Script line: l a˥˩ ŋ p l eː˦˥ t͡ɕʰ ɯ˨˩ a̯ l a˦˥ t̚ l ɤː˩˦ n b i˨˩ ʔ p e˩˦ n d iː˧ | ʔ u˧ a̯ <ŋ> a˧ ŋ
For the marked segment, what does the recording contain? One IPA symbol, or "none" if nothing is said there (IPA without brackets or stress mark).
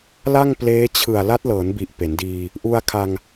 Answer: kʰ